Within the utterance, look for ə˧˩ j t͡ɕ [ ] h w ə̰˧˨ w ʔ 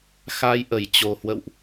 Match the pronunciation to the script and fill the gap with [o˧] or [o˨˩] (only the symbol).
o˨˩